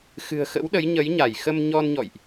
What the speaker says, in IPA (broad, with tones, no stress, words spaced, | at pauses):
xɨ̤˨˩ə̯xə̰˧˥wɗə˨˦j ɲə˨˦jɲa˧˩jxə˧m ɲɔ˧nɲɔ̰˧˨jʔ